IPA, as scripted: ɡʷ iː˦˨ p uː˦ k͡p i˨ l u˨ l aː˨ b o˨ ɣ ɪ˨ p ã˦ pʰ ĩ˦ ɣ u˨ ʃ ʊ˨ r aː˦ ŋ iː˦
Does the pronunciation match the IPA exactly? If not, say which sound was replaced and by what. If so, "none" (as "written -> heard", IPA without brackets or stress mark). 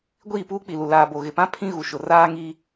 none